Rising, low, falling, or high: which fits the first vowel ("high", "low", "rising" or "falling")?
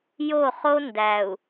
falling